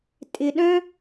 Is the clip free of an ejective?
no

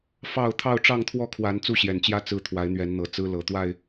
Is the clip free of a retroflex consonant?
no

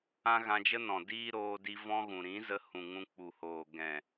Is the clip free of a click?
yes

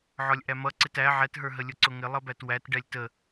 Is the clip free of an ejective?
yes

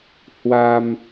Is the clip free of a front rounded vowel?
yes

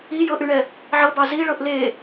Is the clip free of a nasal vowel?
yes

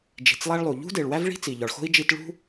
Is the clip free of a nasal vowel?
yes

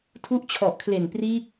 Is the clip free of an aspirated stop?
no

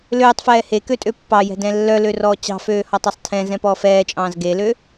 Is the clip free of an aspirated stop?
no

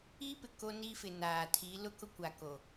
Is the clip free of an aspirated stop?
no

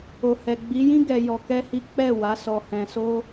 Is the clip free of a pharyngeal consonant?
yes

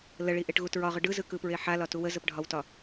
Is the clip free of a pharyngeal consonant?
no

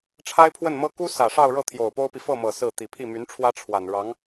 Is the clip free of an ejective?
yes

